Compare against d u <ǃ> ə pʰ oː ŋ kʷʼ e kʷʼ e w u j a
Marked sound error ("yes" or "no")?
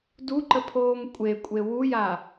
no